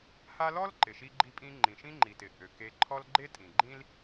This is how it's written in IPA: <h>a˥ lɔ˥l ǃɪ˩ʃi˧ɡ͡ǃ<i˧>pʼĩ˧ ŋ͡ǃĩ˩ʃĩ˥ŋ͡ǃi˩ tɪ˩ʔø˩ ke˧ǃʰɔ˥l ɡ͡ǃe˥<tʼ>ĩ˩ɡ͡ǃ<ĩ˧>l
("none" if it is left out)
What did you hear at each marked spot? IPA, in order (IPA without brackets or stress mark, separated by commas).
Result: h, i˧, tʼ, ĩ˥